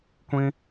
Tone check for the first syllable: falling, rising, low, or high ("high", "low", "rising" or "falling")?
high